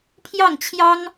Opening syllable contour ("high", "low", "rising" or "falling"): falling